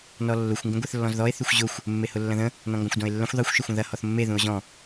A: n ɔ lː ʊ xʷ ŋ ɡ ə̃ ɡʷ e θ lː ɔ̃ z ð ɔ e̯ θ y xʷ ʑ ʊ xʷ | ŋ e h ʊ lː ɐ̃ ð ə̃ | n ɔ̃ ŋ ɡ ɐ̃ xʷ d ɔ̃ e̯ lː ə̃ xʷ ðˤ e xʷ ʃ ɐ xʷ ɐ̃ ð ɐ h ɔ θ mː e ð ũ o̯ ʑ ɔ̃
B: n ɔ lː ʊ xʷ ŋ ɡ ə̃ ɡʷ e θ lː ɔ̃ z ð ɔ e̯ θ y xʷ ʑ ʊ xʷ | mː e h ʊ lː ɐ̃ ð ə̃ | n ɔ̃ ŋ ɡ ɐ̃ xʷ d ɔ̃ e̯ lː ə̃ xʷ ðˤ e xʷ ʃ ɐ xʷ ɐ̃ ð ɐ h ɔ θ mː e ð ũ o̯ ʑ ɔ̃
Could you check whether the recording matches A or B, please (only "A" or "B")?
B